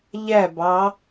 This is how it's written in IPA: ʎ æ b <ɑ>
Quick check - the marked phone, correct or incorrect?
correct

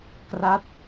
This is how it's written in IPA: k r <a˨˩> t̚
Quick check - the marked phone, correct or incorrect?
incorrect: a˦˥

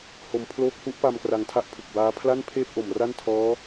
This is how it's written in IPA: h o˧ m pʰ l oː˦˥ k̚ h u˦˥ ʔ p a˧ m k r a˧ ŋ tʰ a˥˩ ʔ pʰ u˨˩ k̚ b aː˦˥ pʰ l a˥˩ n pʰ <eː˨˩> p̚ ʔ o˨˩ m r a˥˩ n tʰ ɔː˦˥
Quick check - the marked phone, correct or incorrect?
incorrect: eː˥˩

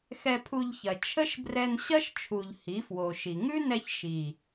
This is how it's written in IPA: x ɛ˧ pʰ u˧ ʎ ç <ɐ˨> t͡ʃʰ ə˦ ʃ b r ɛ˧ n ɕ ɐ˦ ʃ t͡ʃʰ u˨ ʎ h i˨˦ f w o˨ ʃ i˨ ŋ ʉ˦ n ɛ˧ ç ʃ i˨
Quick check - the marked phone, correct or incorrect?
correct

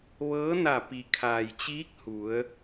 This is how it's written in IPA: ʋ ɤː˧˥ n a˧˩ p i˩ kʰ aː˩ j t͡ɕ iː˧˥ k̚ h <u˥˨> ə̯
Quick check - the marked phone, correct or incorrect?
incorrect: u˩˧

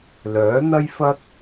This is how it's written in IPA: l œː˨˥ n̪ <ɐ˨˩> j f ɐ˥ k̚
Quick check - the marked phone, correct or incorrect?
incorrect: ɐ˥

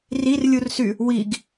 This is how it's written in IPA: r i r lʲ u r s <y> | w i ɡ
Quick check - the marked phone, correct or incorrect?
correct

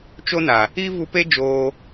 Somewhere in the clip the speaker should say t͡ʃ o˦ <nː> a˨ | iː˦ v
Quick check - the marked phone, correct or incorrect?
incorrect: n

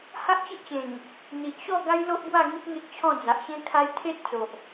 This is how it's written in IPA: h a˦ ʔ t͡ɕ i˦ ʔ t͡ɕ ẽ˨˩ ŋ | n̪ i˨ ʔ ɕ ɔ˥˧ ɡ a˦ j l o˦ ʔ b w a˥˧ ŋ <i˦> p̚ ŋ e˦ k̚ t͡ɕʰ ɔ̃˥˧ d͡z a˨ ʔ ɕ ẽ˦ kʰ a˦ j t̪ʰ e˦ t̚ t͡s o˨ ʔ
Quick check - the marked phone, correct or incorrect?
correct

